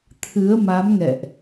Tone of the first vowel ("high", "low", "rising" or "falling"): rising